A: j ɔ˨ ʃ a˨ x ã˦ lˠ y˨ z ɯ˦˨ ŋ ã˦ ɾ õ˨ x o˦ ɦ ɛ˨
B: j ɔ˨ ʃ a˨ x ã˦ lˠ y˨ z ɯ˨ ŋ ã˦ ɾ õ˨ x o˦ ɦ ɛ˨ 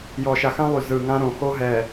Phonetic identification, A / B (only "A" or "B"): B